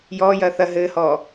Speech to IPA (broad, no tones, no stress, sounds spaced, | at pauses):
j ɔː j ɐː θ ɐ ɦ ɘː h ɔː